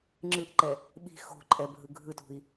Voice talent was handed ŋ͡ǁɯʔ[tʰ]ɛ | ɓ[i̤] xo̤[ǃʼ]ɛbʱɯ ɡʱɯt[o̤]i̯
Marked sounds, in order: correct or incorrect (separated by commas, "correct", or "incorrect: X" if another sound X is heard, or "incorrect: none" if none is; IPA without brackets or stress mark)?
incorrect: ǃ, correct, correct, incorrect: ṳ